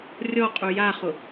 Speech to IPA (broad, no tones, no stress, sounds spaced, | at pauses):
rʲ ɔ qʼ u j a χ ʊ